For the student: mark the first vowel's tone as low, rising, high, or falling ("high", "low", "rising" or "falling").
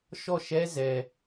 falling